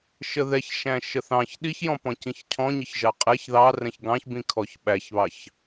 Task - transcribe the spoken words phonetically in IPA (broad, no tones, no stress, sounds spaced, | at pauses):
ʃ ə ð ɛ ç ʃ æ̃ ʃ ə θ ɑ̃ ç ɗ i ç j ɔ̃ p ɔ̃ c ĩ ç cʰ ɔ̃ ɲ ɪ ç ʒ ɑ qʼ ɛ ç ð ɑ r ɛ̃ ç ɡ ɑ̃ ç b ĩ kʰ ɔ ç ɓ æ ç β ɑ ç